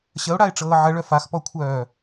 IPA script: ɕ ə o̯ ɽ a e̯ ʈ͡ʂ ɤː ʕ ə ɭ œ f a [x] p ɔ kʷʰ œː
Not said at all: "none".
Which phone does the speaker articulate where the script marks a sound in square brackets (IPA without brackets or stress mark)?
x